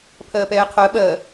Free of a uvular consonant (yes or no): no